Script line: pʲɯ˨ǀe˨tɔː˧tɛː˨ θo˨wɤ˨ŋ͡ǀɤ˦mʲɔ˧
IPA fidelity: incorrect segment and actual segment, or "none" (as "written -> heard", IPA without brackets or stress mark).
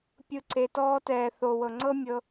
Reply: ɔ˧ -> ɤ˧